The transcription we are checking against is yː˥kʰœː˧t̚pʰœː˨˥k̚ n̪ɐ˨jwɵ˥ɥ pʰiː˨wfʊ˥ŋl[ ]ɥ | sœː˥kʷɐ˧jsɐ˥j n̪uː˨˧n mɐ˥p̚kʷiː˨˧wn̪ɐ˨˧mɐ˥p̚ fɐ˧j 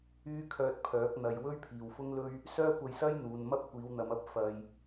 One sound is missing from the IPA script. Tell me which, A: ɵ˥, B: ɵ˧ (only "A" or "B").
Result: A